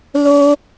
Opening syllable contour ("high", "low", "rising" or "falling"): high